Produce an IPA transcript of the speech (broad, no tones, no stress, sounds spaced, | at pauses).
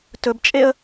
t ɵ b t͡ʃʼ e ə̯